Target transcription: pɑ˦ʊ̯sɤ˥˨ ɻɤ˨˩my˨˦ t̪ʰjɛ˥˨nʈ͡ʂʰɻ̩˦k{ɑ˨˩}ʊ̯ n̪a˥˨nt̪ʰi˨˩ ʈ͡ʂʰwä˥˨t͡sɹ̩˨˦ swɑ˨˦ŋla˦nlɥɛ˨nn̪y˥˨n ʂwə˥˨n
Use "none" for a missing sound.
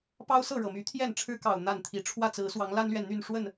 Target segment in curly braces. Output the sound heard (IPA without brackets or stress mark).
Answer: ɑ˨˩